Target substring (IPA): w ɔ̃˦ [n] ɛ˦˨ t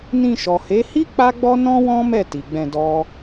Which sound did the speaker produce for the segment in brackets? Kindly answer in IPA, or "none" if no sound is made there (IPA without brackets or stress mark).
m